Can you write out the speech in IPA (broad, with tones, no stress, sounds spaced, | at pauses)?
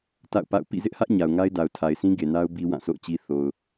t a̰˦˨ ʊ̯ p a̰˦˨ ʊ̯ p ḭ˦˨ z ɪ˦ ʔ h ä˦ ʔ ɲ a˨ ʊ̯ ŋ a˦ ɪ̯ d a˨ ʊ̯ tʰ a˨ ɪ̯ s ĩ˦ ɡ e˨ n a˦ ʊ̯ b i˦ w ã˦˨ s o̰˦˨ ʊ̯ t͡ɕ i˦ θ o˨ ʊ̯